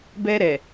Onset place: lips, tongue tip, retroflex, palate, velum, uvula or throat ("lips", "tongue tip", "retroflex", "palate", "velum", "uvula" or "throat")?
lips